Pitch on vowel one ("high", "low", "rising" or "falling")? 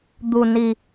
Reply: low